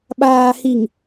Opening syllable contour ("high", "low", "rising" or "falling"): low